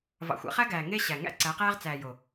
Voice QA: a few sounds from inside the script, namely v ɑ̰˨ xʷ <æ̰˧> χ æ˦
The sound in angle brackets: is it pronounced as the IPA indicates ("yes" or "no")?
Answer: yes